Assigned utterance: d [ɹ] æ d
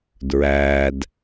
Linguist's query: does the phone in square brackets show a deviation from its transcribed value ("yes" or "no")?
no